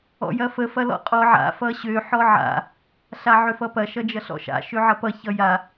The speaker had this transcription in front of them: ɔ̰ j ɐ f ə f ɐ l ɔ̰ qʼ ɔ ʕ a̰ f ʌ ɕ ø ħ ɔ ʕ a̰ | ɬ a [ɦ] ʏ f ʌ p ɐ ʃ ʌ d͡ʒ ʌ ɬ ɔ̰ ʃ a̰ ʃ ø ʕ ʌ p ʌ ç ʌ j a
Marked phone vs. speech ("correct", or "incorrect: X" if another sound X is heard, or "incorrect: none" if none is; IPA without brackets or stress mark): incorrect: ʕ